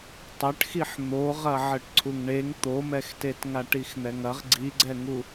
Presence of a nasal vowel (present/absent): absent